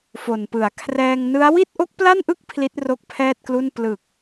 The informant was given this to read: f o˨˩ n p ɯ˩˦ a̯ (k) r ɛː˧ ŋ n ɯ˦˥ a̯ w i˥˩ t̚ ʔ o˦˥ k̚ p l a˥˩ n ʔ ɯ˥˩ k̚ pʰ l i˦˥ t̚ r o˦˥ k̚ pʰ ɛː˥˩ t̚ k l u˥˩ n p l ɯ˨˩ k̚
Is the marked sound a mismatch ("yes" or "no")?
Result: yes